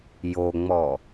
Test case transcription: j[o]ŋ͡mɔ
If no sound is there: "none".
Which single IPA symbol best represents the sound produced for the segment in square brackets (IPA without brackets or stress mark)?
o